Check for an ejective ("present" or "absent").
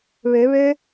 absent